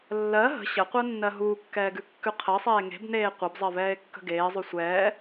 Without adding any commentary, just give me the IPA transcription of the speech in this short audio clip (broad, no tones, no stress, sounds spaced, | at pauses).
lː ɜ ɦ ə̤ ɕ ə qʷ ɜ nː ɜ ɦ uː kː ɛː ɡ ʉ kː ʉ qʰ ɜ sˤ eː ŋ e̤ b n eː qʷ ɛ b zˤ ɜ v ɛː e̯ kː ə̤ ɡ eː zˤ ʉ sʷ ɛː